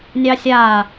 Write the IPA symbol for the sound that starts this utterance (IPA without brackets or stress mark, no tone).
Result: nʲ